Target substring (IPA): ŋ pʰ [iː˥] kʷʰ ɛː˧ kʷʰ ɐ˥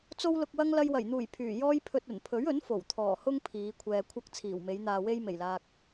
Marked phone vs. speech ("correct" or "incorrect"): incorrect